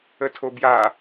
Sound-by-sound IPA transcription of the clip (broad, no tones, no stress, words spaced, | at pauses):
ətʰobja